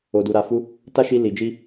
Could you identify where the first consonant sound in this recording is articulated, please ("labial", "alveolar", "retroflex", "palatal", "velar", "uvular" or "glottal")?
alveolar